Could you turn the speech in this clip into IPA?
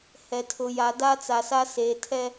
h ɛ˨ tʰ ʊ˨ j a˨ d a˦ t͡s a˨ s a˦ s eː˨ tʰ ɛ˦

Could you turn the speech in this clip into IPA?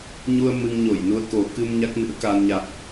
ɲ u˧ ə̯ m ɨ˧ ŋ ɲ o˧˩ j n u˧ ə̯ k o˨˩ k ɨ˧ m ɲ a˦˥ k̚ n ɨ̰˧˥ ə̯ k a˧ n ɲ a̰ː˧˨ n ʔ

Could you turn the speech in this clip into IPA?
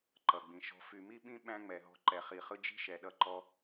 ǃ ʌ˨ ɡ͡b ĩ˨ ʃ ɔ̤˧ f y˨ m i˦ ɓ ĩ˦ ɓ æ̃˦ ŋ͡m ɛ˨ ɦ ɔ̤˧ ǃ ɛ˨ χ i˨ χ ɯ˦ d͡ʒ i̤˦ ʃ ɛ˨ ɗ ʌ˧ ǃ ɔ˧

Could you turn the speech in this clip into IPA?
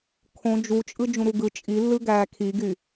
kʰ õ d͡ʒ u t͡ʃʼ ɯ d͡ʒ ũ ɾ u ɡ ɯ t͡ʃʼ i lː ɯ ɡ æː kʰ i ɡ y

